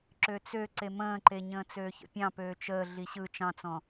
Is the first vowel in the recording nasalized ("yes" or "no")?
no